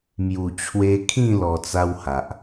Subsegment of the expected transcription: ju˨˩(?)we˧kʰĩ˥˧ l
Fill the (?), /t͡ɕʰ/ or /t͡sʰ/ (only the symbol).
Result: t͡ɕʰ